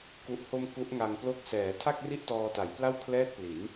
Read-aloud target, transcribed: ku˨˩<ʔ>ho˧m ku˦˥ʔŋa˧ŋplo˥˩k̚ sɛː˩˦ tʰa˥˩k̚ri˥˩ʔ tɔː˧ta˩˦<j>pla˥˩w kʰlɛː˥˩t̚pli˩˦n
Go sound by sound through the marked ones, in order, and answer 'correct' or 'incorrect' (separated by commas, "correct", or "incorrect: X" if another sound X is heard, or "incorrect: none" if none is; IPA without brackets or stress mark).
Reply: correct, correct